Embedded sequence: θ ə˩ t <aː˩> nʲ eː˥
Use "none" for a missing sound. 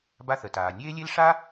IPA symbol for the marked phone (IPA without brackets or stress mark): aː˩